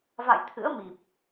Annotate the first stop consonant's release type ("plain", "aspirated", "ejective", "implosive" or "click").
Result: aspirated